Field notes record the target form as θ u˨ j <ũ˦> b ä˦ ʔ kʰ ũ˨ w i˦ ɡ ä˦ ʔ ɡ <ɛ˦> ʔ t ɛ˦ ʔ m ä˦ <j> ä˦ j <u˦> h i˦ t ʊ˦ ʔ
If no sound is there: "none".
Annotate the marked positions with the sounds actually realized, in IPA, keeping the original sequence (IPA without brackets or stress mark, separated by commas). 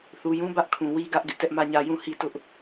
ũ˦, ɪ˦, ɲ, ũ˦